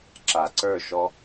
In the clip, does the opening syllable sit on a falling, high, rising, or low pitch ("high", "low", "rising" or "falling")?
low